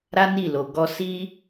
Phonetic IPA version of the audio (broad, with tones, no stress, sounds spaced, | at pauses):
ɾ a˦ n i˦˨ l o˨ ɡ ɔ˧ s i˦